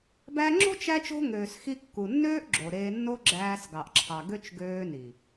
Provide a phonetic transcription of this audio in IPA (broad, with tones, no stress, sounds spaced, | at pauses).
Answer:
b æ˧ ŋ͡ǁ o̤˦ t͡ʃ æ˦ t͡ʃ o̤˦ ŋ øː˨ s x i˧ kː u˨ nː øː˦ ʔ ɡ͡ǁ o˨ ɾ eː˧ nː o˦ ɡ͡ǁ æː˧ s ɡ ɑ˨ ʔ ǁʰ ɑ˨ ɡ ø˦ t͡ʃ ɡ øː˧ n i˨